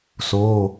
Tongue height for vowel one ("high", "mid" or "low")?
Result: mid